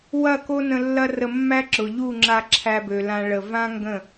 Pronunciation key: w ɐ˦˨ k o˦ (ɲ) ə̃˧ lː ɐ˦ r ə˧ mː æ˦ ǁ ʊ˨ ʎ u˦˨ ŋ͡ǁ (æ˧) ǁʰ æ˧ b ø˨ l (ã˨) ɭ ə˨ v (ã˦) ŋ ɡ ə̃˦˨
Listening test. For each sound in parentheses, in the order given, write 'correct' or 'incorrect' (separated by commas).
incorrect, incorrect, incorrect, correct